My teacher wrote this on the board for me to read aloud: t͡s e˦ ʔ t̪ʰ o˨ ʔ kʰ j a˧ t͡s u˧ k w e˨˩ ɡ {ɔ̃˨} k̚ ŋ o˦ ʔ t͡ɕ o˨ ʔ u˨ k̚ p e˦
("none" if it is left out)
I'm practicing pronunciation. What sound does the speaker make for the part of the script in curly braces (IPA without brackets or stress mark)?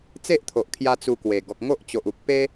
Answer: ɔ˨